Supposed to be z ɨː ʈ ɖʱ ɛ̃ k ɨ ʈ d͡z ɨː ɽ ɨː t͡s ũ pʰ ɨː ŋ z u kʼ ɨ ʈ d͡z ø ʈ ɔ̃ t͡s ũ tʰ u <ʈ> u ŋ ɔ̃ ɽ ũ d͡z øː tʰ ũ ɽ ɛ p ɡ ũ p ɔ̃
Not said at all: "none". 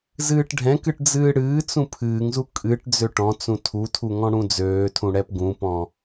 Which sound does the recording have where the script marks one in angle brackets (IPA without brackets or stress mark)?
tʰ